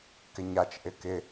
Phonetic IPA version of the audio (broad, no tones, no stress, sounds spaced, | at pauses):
k ɪ ɲ a t͡ʃ ʔ ɪ k ɪ